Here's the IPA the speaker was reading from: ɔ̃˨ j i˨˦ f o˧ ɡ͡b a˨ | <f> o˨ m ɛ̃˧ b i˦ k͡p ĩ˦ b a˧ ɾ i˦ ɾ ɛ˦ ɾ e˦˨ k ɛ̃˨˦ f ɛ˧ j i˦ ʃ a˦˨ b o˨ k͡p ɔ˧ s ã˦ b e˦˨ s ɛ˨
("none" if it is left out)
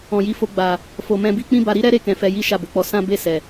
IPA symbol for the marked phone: f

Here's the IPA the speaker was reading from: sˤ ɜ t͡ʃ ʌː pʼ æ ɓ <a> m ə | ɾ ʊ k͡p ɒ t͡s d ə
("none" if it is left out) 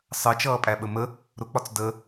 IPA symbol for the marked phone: ə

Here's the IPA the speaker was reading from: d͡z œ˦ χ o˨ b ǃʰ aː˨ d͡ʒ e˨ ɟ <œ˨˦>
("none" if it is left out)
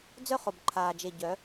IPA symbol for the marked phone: œ˨˦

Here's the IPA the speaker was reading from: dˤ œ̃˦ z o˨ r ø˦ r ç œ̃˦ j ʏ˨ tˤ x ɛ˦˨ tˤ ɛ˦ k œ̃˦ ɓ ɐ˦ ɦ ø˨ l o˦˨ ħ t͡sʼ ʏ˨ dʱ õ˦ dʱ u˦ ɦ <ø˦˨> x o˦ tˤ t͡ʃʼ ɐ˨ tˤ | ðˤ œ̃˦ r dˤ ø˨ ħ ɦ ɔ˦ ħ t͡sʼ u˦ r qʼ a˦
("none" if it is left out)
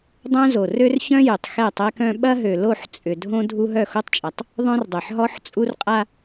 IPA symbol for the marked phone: œ˦˨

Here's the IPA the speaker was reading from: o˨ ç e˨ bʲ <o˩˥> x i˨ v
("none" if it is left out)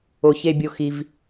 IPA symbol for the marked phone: o˨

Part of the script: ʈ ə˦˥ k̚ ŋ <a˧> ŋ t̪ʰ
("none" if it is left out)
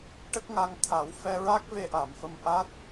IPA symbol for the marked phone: a˧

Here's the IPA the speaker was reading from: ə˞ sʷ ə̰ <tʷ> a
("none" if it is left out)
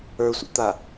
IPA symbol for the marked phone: t̪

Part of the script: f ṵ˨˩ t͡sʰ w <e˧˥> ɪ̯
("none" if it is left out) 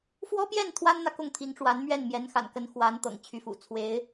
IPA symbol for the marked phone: e˧˥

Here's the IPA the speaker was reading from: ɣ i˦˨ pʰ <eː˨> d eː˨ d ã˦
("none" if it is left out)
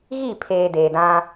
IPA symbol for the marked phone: eː˨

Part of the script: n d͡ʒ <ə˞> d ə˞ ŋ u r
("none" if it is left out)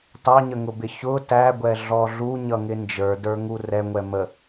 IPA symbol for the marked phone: ə˞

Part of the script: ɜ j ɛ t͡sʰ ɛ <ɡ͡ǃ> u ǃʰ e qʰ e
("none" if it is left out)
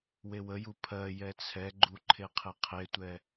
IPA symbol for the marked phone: ɡ͡ǃ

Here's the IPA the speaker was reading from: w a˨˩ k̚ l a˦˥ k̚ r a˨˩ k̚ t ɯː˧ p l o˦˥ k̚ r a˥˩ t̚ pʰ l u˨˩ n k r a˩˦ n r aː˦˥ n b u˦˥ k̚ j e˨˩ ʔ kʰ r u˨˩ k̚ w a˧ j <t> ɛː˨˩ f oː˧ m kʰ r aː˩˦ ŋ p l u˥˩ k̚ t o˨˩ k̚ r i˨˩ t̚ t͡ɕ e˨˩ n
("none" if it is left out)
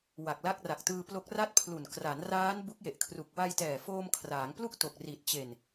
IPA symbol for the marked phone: t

